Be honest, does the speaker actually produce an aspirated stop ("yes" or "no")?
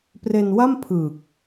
yes